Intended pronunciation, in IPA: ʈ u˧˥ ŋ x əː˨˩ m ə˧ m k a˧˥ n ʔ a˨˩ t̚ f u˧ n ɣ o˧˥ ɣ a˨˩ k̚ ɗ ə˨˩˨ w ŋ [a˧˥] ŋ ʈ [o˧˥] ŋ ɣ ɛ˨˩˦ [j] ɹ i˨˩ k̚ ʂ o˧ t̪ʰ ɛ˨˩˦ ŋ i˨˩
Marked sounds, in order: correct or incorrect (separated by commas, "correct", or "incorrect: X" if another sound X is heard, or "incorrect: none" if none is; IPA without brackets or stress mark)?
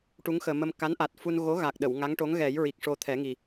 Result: correct, correct, correct